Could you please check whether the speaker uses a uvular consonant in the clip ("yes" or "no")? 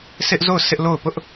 no